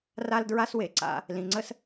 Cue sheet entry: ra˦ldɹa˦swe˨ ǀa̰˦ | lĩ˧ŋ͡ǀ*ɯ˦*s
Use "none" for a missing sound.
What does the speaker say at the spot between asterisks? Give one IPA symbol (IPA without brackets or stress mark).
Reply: ə˦